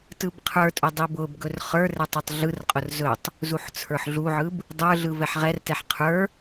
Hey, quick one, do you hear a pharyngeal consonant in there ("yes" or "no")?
yes